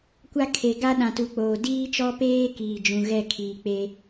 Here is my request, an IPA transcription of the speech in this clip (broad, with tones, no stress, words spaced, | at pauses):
kʷa˦ kʰe˨ɡa˦ɗã˨tu˨ k͡poː˨ diː˦t͡ʃɔ˦peː˦ kiː˨d͡ʒũ˨ ɣɛ˦˨ kʰiː˨k͡pe˦